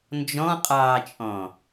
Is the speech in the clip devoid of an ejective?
no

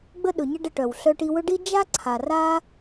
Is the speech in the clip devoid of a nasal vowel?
yes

